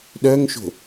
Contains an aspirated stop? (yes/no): no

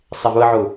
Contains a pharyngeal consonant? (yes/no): yes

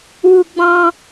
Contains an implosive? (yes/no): no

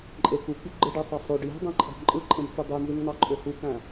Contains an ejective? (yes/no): yes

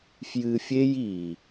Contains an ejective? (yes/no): no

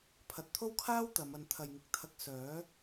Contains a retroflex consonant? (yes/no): no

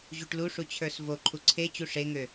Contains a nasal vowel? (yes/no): no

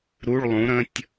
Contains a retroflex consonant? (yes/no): yes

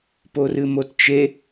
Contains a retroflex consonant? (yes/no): no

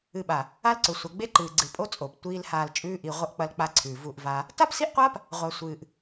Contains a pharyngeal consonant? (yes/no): no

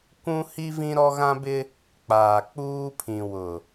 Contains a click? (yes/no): no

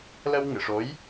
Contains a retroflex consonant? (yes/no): yes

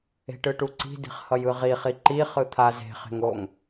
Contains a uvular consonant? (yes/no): yes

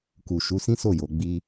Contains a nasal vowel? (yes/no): yes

